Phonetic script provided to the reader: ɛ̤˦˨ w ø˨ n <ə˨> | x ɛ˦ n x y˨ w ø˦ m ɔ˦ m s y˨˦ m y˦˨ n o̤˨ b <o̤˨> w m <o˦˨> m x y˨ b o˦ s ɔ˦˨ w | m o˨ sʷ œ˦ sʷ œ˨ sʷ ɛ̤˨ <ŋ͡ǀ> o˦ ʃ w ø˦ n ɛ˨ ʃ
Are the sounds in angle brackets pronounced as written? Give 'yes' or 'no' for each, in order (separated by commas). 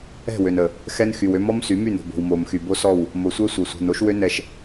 yes, yes, no, no